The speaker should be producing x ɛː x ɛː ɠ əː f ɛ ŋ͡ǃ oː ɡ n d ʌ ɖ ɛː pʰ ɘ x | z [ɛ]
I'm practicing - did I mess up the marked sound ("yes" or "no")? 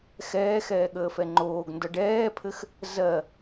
yes